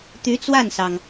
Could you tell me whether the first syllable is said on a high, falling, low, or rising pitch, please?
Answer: rising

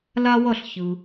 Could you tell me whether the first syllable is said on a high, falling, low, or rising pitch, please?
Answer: high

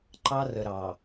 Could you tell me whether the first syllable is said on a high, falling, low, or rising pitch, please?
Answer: high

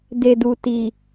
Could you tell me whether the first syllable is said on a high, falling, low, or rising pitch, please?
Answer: low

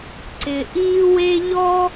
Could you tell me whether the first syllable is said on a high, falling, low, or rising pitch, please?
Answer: low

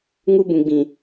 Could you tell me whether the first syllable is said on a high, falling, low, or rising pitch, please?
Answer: high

